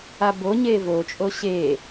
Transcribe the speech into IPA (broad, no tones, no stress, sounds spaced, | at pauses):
a b o ɲ eː v o t͡ʃʼ o ɕ e